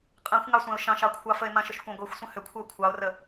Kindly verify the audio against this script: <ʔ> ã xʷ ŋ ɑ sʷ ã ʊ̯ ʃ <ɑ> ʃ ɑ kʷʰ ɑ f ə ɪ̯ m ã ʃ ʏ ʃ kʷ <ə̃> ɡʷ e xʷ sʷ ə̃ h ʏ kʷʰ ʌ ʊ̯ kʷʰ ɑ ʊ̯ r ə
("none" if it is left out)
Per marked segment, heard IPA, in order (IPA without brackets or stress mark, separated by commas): qʼ, ɑ̃, ɑ̃